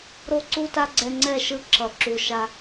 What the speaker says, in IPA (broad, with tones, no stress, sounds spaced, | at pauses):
ɾ o˦ ǀ u˦ t a˦ ɡ͡ǀ ɛ˦ ŋ͡ǀ ɛ˦˨ ʃ ɯ˦ ǁ ʌ˨ ǁ u˨ ʃ a˦